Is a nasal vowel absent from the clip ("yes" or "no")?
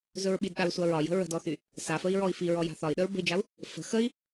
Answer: yes